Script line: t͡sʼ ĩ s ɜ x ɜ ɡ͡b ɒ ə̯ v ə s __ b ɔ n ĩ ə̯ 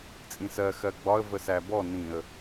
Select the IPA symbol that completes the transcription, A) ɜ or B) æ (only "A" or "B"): B